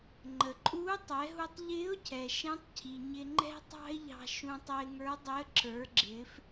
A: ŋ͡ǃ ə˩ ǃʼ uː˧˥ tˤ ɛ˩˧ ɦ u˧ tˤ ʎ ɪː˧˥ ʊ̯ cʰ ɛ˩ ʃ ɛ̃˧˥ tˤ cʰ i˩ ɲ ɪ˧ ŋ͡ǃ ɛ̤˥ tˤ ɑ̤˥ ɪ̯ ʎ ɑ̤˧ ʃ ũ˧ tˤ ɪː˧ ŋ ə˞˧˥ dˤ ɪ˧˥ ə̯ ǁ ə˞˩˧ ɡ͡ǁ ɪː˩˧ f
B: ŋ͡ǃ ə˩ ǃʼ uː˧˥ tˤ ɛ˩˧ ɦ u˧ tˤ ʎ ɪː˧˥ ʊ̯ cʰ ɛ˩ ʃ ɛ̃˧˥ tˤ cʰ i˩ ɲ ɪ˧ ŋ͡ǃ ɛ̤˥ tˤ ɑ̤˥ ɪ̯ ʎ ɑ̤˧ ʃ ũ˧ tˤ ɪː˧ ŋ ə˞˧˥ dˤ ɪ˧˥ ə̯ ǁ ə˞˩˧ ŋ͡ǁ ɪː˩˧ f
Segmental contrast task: A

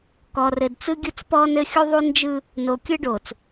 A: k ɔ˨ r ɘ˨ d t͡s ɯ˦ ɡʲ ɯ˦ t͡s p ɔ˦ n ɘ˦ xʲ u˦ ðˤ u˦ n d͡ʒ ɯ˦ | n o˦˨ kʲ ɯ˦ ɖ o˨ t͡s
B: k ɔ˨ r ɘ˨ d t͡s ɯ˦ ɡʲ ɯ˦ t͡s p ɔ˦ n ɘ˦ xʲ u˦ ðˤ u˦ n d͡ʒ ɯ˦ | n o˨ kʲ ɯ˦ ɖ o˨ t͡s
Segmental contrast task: B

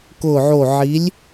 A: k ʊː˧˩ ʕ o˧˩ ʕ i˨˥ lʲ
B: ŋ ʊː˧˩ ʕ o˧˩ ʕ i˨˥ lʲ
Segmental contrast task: A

